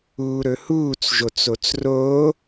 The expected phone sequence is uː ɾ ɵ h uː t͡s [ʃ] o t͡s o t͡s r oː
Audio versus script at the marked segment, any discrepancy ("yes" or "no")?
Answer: yes